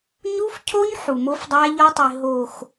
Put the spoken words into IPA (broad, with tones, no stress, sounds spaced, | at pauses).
ɲ u˦ f cʰ o˦ ɲ ħ u˨ m o˦ f dˤ æ˦ ʎ ɒ˦ tˤ i˨ ɦ o˨ x